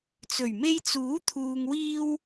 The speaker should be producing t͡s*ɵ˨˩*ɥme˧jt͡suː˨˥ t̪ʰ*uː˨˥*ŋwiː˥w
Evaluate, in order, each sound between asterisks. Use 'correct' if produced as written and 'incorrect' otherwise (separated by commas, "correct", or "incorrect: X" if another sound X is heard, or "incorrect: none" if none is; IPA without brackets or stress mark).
correct, incorrect: uː˧